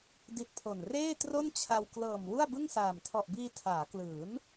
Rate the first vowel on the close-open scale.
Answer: close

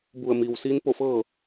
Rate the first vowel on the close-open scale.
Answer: close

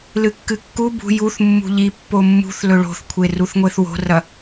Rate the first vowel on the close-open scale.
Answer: close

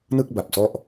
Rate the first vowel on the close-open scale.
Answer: close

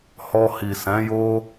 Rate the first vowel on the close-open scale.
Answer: mid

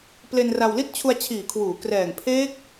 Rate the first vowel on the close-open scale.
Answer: mid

